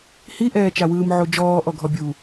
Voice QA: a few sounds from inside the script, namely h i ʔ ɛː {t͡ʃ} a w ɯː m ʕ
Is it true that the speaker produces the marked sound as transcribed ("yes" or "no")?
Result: yes